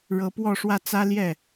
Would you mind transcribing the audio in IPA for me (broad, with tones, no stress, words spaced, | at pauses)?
ɻɤ˧˥pwɔ˥˧ʂwä˥˩ t͡sä˥ljɛ˥˩